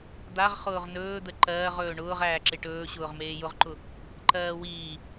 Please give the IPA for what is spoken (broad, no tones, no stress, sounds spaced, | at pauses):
d̪ a ʁ χ ʊː ʁ n ɵː d̪ ə ǃ ɜː ʁ ɵː ɳ ʊː ʁ æː ǁ e ʈ ɵː ɕ ʊː ʁ m eː j ʊ ʁ ǃ ʊ | ǃ ɜː w iː